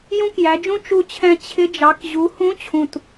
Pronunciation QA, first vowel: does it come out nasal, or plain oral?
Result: nasal